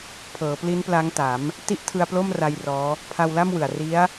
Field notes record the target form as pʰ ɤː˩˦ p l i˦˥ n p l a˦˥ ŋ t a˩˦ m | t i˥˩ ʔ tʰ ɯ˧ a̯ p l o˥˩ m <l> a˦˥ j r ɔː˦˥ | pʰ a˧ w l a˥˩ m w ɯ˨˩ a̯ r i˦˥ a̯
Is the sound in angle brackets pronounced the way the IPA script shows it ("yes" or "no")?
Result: no